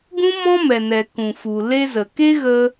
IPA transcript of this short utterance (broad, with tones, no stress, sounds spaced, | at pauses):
ɡ ũ˦ m ɔ̃˦ m ɛ˨ n ɛ˨ k ũ˨ f u˨ l e˦ z ə˨ k e˦ ɣ ə˧